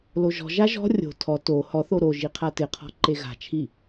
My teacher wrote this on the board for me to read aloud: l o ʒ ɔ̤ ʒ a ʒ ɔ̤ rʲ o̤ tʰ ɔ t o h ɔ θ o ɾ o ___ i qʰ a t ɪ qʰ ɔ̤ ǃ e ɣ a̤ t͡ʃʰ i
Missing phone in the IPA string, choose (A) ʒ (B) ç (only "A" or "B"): A